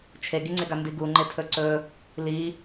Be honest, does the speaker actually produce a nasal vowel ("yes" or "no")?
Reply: no